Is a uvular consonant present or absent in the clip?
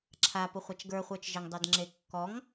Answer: present